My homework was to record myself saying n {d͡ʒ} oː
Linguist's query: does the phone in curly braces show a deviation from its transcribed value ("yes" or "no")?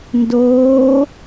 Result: yes